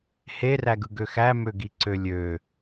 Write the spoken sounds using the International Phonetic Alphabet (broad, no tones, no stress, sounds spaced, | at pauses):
h e r æ ɡ ɯ ɡ ø x æ m ø ɡ i ǀ ø lʲ ø